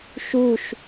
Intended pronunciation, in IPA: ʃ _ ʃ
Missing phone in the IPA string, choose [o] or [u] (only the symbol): u